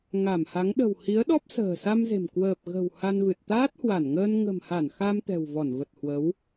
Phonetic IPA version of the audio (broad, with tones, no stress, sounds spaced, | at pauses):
ŋ a˧˩ m h a˨˦ ŋ ɗ ə̤˨˩ w h i˨˦ ə̯ ɗ ɔ˦˥ p̚ s ə̤ː˨˩ s a˧ m z e̤˨˩ m k w əː˨˩ p̚ ɣ ə̤˨˩ w h a˧ n v ɨ˨˩ t̚ t̪ aː˦˥ t̚ h w a˧˩ n ŋ əː˧ n ŋ ə̤˨˩ m h a˧˩ n x a˧ m t̪ ɛ̤˨˩ w v ɔ˧˩ n v ə˨˩ t̚ h w ə˨˦ w